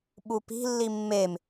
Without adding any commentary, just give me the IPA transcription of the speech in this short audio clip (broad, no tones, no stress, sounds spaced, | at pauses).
ɓ u p i̤ lː i mː e m